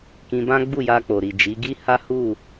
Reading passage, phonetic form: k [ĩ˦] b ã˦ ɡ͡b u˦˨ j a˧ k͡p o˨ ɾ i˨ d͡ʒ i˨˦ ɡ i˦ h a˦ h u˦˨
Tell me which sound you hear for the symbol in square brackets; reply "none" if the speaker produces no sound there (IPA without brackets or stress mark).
ĩ˧